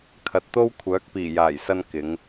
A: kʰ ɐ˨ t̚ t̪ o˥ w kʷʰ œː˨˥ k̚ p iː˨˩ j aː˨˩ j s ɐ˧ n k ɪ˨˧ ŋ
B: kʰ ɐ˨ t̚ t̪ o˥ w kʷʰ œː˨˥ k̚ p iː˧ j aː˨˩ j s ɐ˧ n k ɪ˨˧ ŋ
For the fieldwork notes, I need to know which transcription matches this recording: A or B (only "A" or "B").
A